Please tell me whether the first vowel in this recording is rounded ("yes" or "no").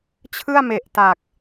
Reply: no